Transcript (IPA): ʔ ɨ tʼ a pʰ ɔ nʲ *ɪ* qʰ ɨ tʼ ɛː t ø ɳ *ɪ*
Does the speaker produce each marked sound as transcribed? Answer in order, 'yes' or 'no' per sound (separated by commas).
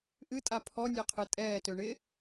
no, yes